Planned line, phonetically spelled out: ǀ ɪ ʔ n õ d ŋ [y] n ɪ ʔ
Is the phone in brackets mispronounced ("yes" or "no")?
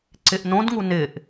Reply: yes